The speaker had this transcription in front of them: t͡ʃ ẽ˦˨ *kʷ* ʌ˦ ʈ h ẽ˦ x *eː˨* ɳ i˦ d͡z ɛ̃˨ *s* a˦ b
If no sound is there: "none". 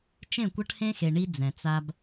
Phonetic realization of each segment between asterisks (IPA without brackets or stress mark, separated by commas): kʷ, e˨, t͡s